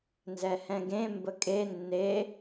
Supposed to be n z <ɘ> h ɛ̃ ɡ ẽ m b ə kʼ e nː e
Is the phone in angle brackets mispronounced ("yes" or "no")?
yes